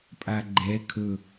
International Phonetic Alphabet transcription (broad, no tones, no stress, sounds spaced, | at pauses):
pʼ a ɡ͡ǃ ɛ kʰ ɵ